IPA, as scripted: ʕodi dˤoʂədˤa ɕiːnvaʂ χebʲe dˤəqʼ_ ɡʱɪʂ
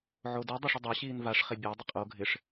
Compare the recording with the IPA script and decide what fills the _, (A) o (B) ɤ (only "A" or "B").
A